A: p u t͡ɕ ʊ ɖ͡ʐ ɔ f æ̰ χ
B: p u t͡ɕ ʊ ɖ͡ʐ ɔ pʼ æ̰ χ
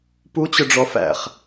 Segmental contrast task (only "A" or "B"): A